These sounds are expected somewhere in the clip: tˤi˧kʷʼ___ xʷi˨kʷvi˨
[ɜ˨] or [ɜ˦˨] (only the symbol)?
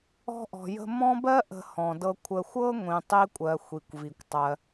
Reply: ɜ˨